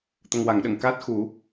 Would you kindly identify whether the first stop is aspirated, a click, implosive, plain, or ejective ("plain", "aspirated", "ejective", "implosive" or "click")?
plain